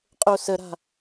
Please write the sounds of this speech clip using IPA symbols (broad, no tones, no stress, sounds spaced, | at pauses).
qʼ o s ə ɾ a̤